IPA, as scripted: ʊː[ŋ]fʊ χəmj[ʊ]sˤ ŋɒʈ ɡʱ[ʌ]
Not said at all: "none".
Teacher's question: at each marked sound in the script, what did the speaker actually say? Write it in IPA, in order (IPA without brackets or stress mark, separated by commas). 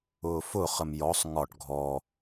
none, ɔ, ɔ